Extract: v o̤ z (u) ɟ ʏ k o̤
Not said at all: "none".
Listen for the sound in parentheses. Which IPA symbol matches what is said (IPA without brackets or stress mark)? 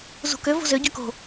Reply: ʏ